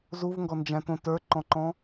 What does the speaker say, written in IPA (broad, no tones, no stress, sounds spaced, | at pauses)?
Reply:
z u v ŋ ɡ ɔ n d͡ʒ æ̃ t õ t ə˞ ǃ ɔ̃ ǃ ɔ̃